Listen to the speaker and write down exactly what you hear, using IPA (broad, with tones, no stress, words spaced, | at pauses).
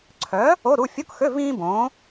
ǀʰœ˨˥ | o˧˥˧ ɾu˧˥˧ fʲo˧˥˧kxø˧˥˧ vĩː˥bõː˨˥